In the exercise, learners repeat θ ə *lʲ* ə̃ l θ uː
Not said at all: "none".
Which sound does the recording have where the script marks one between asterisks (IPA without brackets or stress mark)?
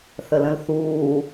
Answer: l